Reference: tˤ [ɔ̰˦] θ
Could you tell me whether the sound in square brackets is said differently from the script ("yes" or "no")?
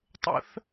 yes